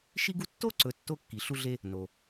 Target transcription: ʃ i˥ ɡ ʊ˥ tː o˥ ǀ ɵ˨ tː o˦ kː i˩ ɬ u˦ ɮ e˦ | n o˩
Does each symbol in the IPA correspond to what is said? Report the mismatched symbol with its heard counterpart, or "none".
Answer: ʊ˥ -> u˥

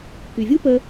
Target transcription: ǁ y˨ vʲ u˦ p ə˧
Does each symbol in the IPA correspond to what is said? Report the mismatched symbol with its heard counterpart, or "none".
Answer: ǁ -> k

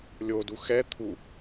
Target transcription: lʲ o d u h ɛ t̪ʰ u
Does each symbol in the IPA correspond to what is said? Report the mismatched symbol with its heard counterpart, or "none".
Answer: h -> x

